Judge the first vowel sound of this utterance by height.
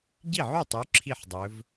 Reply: high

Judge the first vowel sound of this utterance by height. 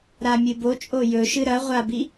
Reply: low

